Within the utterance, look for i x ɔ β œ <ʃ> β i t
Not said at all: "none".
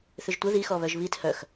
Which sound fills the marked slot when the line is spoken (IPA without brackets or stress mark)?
ʒ